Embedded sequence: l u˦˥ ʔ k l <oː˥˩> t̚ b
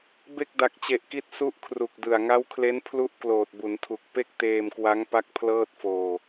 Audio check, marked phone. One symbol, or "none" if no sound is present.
oː˨˩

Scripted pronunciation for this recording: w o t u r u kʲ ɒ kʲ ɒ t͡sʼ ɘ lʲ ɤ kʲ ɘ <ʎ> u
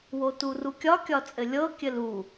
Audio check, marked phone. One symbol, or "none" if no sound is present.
l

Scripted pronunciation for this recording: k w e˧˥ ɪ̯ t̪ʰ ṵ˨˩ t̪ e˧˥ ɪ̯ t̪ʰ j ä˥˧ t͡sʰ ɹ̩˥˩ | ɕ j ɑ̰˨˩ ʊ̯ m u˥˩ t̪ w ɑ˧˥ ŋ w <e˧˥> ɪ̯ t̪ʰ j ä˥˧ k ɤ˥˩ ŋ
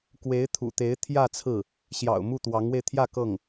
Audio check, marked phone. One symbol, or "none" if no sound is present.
e˧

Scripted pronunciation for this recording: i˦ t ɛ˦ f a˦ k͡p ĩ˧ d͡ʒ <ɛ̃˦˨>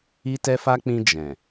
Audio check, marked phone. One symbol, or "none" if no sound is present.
ɛ̃˨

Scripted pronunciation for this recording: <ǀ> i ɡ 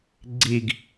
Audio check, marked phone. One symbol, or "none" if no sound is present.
ɡ͡ǀ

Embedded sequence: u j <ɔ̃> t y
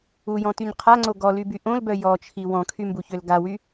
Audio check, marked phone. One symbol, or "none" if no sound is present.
ɔ̃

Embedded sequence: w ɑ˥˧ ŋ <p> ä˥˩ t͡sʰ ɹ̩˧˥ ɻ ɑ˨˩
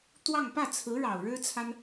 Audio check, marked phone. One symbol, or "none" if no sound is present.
p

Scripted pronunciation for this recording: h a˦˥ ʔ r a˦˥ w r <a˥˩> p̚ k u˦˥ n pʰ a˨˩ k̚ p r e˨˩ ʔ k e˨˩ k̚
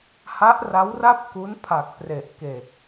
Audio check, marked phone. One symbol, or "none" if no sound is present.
a˥˩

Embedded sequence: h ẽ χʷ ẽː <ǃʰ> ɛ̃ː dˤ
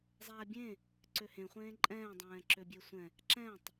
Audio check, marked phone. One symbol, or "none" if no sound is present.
ǃʼ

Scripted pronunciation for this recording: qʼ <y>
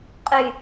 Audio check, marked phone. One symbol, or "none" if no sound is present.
y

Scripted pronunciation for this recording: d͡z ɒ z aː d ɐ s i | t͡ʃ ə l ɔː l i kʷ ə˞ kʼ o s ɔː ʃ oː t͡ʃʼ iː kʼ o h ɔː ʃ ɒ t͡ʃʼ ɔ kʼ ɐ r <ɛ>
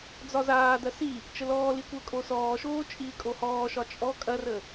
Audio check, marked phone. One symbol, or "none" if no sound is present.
ə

